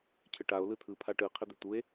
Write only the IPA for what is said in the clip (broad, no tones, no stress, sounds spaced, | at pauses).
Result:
cʰ ɘ ʈ a o̯ l ɯ tʰ ɯ pʰ a ʈ ɯ qʰ ɘ d̪ ɘ t̪ u e̯